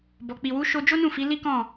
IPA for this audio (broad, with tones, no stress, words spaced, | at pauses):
bɔ˨k͡pi˨wu˨˦ ʃo˧d͡ʒo˦nũ˦˨ fi˨˦li˦kɔ̃˦˨